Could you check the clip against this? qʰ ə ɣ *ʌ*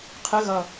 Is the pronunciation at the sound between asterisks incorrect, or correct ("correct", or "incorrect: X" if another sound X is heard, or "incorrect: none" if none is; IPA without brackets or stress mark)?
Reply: correct